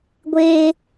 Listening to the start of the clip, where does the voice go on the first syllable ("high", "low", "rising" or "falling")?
high